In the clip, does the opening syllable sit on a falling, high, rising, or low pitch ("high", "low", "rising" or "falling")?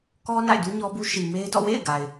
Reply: high